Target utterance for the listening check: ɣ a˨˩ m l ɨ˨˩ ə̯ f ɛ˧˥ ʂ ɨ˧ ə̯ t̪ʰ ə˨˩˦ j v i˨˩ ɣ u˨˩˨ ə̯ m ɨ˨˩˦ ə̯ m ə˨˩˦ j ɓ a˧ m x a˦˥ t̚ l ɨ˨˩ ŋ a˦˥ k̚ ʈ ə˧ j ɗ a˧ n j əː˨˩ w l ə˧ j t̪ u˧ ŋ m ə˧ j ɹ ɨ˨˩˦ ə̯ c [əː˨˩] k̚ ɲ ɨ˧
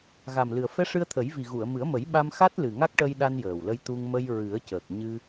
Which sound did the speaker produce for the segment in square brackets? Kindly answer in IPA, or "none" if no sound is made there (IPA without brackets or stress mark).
əː˨˩